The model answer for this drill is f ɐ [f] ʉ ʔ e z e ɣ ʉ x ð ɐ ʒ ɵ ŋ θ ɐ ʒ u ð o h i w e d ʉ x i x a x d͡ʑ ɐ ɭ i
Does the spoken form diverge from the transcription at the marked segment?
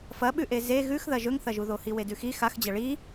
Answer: yes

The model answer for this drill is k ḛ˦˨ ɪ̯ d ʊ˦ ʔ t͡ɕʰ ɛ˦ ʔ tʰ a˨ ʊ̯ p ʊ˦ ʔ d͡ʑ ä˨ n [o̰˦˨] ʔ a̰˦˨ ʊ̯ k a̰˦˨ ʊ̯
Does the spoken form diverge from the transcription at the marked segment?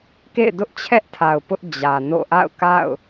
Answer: no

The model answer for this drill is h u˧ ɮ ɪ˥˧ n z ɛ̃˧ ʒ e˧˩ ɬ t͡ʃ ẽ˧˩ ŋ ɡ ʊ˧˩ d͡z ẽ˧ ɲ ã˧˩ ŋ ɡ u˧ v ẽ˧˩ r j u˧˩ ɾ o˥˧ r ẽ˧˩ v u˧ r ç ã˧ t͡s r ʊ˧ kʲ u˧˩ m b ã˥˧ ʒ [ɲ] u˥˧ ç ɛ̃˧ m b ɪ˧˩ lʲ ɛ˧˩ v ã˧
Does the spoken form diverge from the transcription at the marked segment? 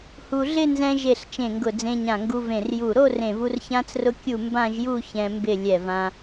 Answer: yes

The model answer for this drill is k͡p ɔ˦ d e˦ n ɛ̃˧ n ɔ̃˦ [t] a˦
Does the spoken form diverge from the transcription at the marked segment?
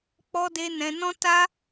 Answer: no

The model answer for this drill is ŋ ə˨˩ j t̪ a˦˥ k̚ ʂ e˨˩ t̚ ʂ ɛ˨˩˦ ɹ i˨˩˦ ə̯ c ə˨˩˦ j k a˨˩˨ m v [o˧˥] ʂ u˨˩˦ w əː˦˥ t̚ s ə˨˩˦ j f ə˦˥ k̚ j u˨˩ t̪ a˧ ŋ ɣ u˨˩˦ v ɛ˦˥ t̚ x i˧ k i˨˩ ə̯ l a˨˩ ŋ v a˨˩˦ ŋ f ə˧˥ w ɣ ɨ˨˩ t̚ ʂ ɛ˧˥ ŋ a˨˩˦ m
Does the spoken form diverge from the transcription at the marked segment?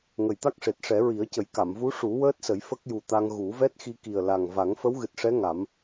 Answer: yes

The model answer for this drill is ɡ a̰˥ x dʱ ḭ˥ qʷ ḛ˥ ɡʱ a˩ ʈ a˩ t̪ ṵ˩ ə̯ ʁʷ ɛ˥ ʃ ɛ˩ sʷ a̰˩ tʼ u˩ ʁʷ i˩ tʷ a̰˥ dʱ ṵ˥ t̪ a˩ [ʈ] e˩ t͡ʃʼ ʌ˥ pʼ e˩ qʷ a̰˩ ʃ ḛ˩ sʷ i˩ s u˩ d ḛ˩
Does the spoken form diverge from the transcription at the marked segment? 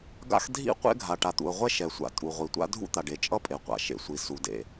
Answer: yes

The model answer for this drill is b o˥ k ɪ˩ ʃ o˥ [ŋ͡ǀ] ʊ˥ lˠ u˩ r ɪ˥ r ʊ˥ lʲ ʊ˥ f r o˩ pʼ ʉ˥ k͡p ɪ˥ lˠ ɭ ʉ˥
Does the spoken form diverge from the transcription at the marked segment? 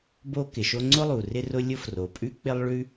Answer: no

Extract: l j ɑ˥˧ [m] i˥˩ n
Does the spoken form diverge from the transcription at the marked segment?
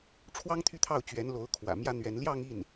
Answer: yes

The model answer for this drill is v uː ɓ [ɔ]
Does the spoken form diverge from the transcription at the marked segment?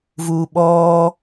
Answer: yes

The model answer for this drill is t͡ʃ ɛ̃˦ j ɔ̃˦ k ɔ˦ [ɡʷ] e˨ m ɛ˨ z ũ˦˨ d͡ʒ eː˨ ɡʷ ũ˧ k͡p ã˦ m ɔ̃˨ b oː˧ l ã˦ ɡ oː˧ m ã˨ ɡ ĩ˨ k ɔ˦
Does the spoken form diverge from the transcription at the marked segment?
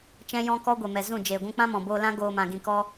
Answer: no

